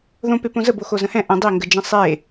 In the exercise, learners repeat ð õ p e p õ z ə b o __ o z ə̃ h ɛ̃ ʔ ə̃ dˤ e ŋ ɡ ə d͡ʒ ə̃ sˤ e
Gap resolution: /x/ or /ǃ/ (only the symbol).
x